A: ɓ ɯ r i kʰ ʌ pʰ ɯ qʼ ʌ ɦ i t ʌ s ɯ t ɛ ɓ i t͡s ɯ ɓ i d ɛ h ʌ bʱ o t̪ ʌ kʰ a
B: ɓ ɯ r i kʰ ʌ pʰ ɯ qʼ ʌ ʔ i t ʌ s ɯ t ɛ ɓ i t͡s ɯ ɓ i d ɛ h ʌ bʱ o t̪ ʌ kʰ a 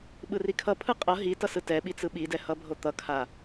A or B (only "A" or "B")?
A